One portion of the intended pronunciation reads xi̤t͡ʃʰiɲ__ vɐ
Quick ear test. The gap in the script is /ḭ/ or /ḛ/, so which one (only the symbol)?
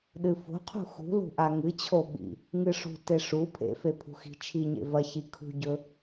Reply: ḛ